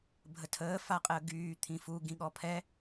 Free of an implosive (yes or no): no